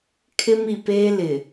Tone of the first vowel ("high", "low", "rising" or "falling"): high